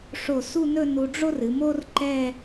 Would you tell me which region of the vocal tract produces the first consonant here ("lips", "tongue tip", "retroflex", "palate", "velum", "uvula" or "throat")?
retroflex